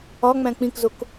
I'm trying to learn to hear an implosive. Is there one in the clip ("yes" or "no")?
no